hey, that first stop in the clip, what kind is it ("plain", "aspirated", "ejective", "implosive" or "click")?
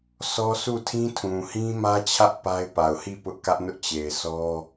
aspirated